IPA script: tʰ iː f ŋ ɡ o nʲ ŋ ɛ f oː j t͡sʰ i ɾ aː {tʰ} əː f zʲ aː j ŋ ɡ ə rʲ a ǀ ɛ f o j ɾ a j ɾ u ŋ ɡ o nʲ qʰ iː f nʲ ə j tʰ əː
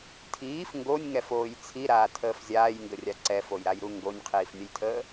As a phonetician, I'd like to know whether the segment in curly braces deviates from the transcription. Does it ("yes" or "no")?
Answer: no